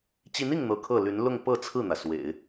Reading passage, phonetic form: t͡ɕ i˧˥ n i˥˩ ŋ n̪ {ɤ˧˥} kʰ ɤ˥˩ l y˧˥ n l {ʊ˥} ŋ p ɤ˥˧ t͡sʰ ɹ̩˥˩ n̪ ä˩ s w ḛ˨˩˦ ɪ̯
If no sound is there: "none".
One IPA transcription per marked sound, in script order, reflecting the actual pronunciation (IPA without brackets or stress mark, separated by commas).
ɤ˧˥, ʊ˥˧